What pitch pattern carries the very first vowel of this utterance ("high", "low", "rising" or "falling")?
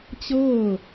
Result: falling